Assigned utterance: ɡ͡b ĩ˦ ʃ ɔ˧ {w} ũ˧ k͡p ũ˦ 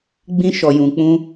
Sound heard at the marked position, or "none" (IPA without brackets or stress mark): j